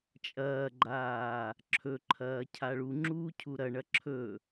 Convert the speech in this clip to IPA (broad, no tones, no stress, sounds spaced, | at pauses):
t͡ʃʼ ɐː ɡ͡ǃ aː | ǁʰ ɵ ǃʰ ɐː cʰ a ɭ u ŋ͡ǁ uː cʰ u ɾ ɐ ɳ ɐ ǁʰ ɵ